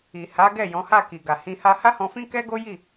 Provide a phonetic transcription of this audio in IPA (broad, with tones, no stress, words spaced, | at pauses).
i˨ ha˨˦ɡɛ˦˨ jɔ̃˨˦ha˦˨ki˨ɡa˨ hĩ˧ ha˧ha˦hɔ̃˧fĩ˦ kɛ˦ɡo˦ji˦˨